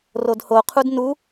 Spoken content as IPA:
rodhoqʰud nu

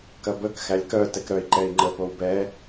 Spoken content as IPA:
kɐbək xælʲkœ tɛkɾœi̯ ǃɛi̯ŋ͡ǃə powbɛ

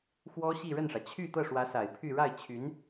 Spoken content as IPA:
xwɔ˥ɕi˥˧ ɻə˥˩nʂä˩ t͡ɕʰy˥˧ t̪ɤ˥˩ʂwä˧˥sa˨˩ɪ̯ pʰy˥˧ ɻa˥˩ɪ̯t͡ɕʰy˧˥n

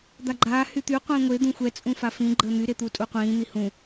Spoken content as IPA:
d̪aɡ͡ǃaː hyt̪y qʷĩːŋʷe d̪ũxʷɛ t͡sʼũfafĩ ɡ͡ǃəːn̪y ɾet̪utʼuqʷĩː n̪ihũ

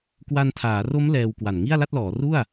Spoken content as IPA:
kwa˧ntʰaː˩˦ ro˦˥m lɛː˧wkwa˨˩n ŋi˥˩a̯la˥˩t̚lɔː˩˦ ru˥˩a̯

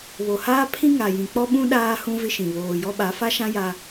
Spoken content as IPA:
βo˨haː˦pʰĩ˦ ŋa˨jĩ˨ k͡pɔ˦ɓũ˦ ɗaː˦ hũ˦vɪ˦ʃĩ˨ βoː˨jɔ˦ɓa˨˦ fa˦ʃã˦ ja˦

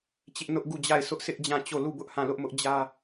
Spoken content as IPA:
t͡ɕɪ˦ʔnʊ˦ʔ ɡu˦˨d͡ʑa˦˨ɪ̯sʰʊ˦ʔ sɪ˦ʔd͡ʑã˦˨t͡ɕo˦˨ lu˦˨bʊ˦ʔ hã˦˨lʊ˦ʔmʊ˦ʔd͡ʑä˦

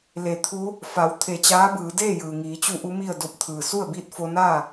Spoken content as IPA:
le˩˧ t̪ʰu˧˥ | fa˩˧w t̪ʰe˧˩t͡ɕaː˧˥bɯː˩˧ deː˥˨jɯː˩ŋiː˩˧t͡ɕu˧ ʔu˧˥mi˥˨ə̯do˧˥p̚ t̪ʰɯː˩ su˥˨ə̯biː˥˨t̚fo˧naː˥˨

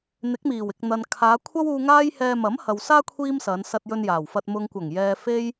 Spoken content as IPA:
n̪ɪ˨˥k̚miː˨˩wɪ˨k̚n̪ɐ˨n kʰaː˨˧kʷʰɐ˥wuː˧ ŋaː˥jhɛː˧ mɐ˨˥mhɐ˨wsaː˥ kʷʰiː˥msɐ˨˧n sɐ˧t̚jɵ˧njaː˨˩wfɐ˧t̚ mʊ˨ŋkʷɐ˨˩ŋjɛː˨ fe˥j

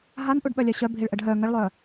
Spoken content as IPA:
ɦanʔuɖɓœlʲœ ɕœbʱiɭʔəɖ ɦœ ŋəɭlˠœ

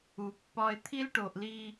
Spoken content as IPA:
u˨ pːɒ˦ɪ̯ t̪ʰi˦lʈo˨ʔli˦

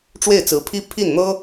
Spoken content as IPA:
ʈ͡ʂwe˥˩ɪ̯t͡sɹ̩˧˥pʰi˥ pʰi˥˩nn̪ɤ˥

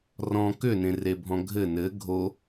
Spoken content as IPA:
rɔ̃ kʏnẽrebʱɔ̃ ɡʱɘ nɘ ɡʱo

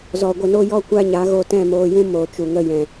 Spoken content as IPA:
zɔ˨ɡʷə˧no˦ jɔ˦kʷa˦ɲa˨˦ ɣo˧tɛ̃˦˨moː˧jũ˦ moː˨t͡ʃu˨ ŋə˧jɛ̃˨

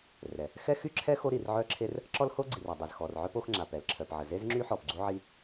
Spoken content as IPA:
rɛ˩ | xɛ˥xy˥ǁʰɛ˥ xo˥ɾi˩rʕœ˥ǁʰe˥r | ǁɔ˥lho˥ɡ͡ǀi˩r a˩dˤe˩zxɔ˩rʕœ˥p o˥x ŋ͡ǁa˩pɛ˩lǁʰœ˩pʕə˩ ze˥zŋ͡ǁy˥ħɔ˩p ɡ͡ǀu˥ʕi˥

